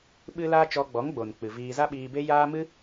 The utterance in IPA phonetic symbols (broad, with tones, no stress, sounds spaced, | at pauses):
ɓ ɨ˦ l aː˦ t͡ʃ ɔ˧ ɡ͡b ɔ˨˦ ŋ ɡ͡b o˨ n k͡p ɨ˨ v iː˧ z a˦ ɓ iː˧ b e˦ j aː˦ m ɨ˦